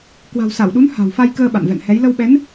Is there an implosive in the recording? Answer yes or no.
yes